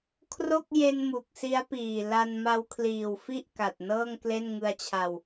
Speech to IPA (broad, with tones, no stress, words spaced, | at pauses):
kʰro˥˩k̚je˧n mu˨˩k̚si˦˥a̯piː˨˩la˧n ma˧wkʰliː˨˩wfi˥˩ʔ ka˨˩t̚nɤː˥˩ŋkle˥˩n ŋɯ˧a̯t͡ɕʰa˧w